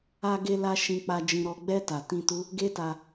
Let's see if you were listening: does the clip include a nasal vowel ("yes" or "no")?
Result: yes